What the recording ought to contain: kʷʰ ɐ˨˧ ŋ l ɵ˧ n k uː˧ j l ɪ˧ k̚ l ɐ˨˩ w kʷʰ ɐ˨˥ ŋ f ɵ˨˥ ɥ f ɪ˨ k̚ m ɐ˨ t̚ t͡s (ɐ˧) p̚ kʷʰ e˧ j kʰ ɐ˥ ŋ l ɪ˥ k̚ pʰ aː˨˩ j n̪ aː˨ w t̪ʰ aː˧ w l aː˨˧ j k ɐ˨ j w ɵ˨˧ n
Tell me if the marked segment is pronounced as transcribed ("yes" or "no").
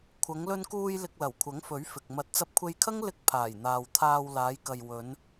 yes